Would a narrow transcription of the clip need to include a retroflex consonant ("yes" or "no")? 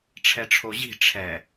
yes